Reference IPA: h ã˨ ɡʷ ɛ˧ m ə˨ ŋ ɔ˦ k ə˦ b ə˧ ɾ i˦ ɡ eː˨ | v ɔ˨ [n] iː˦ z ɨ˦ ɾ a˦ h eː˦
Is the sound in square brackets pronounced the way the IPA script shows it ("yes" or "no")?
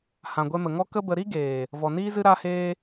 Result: yes